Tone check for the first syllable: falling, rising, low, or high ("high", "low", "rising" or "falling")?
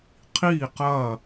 falling